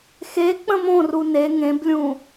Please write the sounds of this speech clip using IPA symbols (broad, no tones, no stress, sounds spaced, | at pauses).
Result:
x e k͡p ə̃ m õ r u n e ŋ ẽ b lʲ ũ